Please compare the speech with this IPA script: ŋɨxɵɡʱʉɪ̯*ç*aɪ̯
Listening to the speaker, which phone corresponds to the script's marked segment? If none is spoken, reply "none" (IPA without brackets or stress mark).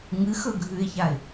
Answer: ç